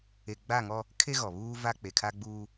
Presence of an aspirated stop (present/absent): present